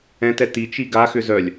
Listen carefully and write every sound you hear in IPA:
ɛ̃tɛ tit͡ʃi ɡaxʏ zœlʲ

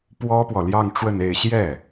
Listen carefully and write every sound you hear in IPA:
pwɔ˥pwɔ˨ ljɑ˥˧ŋʈ͡ʂwə˥˧ne˥˧ɪ̯ ɕjɛ˥˩

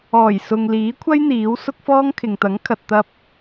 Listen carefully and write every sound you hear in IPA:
ɔː˨˩j sʊ˨ŋ liː˨˥kʷʰɐ˥j n̪iː˨˥w sʊ˥k̚fɔː˥ŋ kʰɪ˨ŋt̪ɐ˨˥ŋ kʰɐ˧t̚ t̪ɐ˥p̚

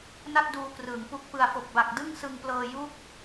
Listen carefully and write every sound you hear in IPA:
na˥˩t̚duː˧krɯː˩˦ŋ pu˨˩k̚pɯ˨˩a̯fo˨˩k̚ba˨˩k̚ dɯ˥˩ŋsɯ˧ŋplɤː˧ ju˦˥k̚

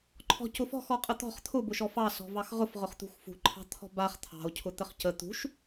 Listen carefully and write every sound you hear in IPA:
ǃʰɔ̤cʊfɔ̤xɔ qʼət̪ɔ̤χ t̪ʰʊbʊʃ ɔfɑsɔ̤ vɑxʁʊfʁʊχ t̪ṳxfṳǃʰɑ̤ t̪ʰɔ̤baχ t̪ʰɑ̤o̯cʰʊ t̪əχcə t̪ṳʃ

